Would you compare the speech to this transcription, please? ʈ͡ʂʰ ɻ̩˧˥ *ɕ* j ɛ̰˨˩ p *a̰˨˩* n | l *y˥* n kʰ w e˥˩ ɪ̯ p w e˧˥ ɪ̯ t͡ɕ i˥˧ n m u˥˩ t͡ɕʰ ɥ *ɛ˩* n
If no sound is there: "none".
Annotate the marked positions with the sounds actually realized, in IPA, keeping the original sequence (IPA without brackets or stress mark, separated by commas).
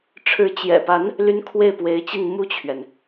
t͡ɕ, a˧˥, y˥, ɛ˩